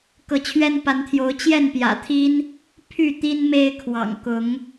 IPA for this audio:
kɤ˨˦t͡ɕʰɥɛ˦npa˨˦nt̪ʰjo˨˦ʊ̯ t͡ɕjɛ˥˨npjä̰˨˩t̪ʰi˦n | pʰy˥˨ t̪i˦nme˦ɪ̯kʰwɑ̰˨˩ŋkʊ˨˦ŋ

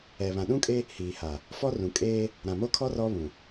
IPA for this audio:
ɛ˨βã˨ ɗũ˦kʼe˦ | hiː˨ha˨ | fɔ˦rũ˨ kʼeː˦ | ɾã˨mo˦kʰɔ˦ rɔ˦βũ˨

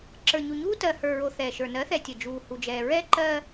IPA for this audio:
ǁə˞˨ɲu˨ɲuː˦ tɜ˨hə˞˨ɹo˨ θɛː˨ʃə˞˨ nɜ˨˦θɛ˨ tʲə˨ d͡ʒuː˨hu˨d͡ʒɛː˨ ɹɛ˦ǃɜ˦

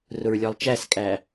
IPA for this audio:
rʊɹlʲɔlˠt͡ʃæskʼæ

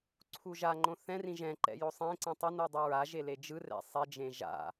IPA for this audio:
ǀʰuʒaŋ͡ǃõ θɛ̃rĩ ʒɛ̃ǃɛ̰ josˤẽǀĩ tˤʌnu dˤuɹaʒe led͡ʒɯrɛ̰ sˤɛd͡ʒẽ ʒa̰

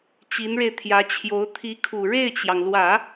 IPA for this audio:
t͡ɕi˧˥nɻe˧ɪ̯t̪ʰjä˧˥t͡ɕʰjo˧˥ʊ̯ t̪ʰi˧˥kʰu˨˩ ɻe˥˩ɪ̯t͡ɕjɑ˩ŋlwä˨˩˦

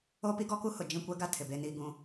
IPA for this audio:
o˦pi˦ɡɔ˦ku˦ hʊ˨ d͡ʒĩ˦˨kʷɛ˦ɡa˦ tʰɪ˨be˦niː˦ ɡũ˦

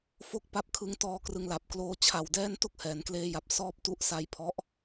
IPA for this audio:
fo˥˩k̚pa˥˩p̚kʰɯ˧ŋtɔː˧ krɯ˧ŋla˨˩p̚kloː˦˥ t͡ɕʰa˨˩wdɛː˥˩n to˥˩k̚hɛː˩˦nkleː˧ja˨˩p̚ sɔː˥˩p̚tu˦˥ʔ sa˦˥j pʰɔ˦˥ʔ

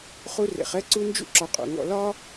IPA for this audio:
χu˦rḛ˨χ ɛ˥ ǀu˦nd͡ʒṵ˥ǁɒ˨ qʼṵ˩ ŋɔ̰˨lɒ˥

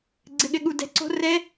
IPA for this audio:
ɡ͡ǀɘ˧ɠɘ˧ɠu˧ dɛ̤˧ǀo̤˦˥ rɛ˦˥

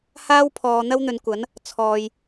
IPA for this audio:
haː˥wpʰɔː˨ n̪ɐ˥wn̪ɵ˨˧nkʷɐ˨˥n | t͡sʰɔː˨j

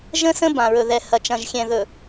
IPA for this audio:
ʒə̃˦sə̃˦ bã˨ɹɵ˨ðɛ˨ hɐ˨t͡ʃɐ̃˨ʒxʲɛ̃˨ ðɵ˨

